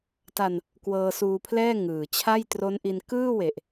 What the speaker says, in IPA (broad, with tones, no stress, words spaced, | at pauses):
ta˧n | kwɤː˧suː˧pʰlɛː˥˩ ŋɯː˨˩t͡ɕʰa˥˩j tro˦˥nʔi˧n kɯː˥˩we˨˩ʔ